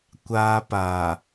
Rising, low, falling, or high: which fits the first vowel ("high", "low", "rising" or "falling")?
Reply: high